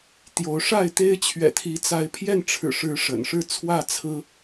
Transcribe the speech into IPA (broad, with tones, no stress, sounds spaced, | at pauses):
t̪ j o˨˦ ʊ̯ ʂ a˥˨ ɪ̯ t̪ e˦ ɪ̯ t͡ɕʰ ɥ ɛ̰˨˩ t̪ʰ i˨˦ t͡s a˨˦ ɪ̯ pʰ j ɛ˥˨ n ʈ͡ʂʰ ɻ̩˨˩ ʂ ɻ̩˨˦ ʂ ə̰˨˩ n ʂ ɻ̩˥˨ t͡sʰ w ä˥˨ t͡sʰ ɹ̩˦